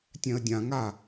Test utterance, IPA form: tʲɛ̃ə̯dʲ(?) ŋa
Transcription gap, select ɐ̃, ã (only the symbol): ã